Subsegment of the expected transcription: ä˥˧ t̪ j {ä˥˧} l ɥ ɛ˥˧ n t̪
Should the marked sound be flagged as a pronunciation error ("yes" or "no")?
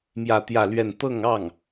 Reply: no